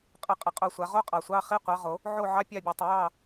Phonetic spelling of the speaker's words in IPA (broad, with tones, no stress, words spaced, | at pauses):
qʼə˨˦qʼə˨˩ qʼo˦˨sʷa˨˦ ʁo˦˥qʼɑ˨˩sʷɑ˧˥˧ χi˧˥˧qʷɑ˨˦ʁo˨˩˦ | ʕo˦˨ ʕɑ˧˥˧pʲɑ˦˨bʲo˨˩tˤə˨˩˦ jɑ˦˨